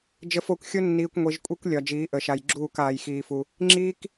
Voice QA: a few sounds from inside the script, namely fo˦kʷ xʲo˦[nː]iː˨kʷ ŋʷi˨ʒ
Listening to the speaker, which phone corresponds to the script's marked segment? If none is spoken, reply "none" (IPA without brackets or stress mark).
nː